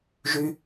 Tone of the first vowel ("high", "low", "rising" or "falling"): low